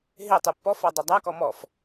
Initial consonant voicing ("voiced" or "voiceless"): voiced